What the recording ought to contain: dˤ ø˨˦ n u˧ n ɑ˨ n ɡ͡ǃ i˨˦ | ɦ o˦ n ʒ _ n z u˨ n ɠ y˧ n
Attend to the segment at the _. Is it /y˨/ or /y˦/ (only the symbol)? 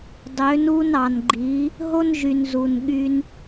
y˨